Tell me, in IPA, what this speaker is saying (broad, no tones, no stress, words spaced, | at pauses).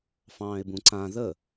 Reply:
fɑ̃ːɪ̯bũǀã ðə